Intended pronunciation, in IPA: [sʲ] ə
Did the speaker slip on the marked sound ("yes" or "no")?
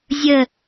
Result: yes